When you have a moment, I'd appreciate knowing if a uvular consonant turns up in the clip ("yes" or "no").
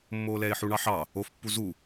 no